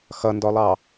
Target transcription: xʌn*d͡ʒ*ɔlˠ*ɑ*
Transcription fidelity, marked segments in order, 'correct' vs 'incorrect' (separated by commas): incorrect, correct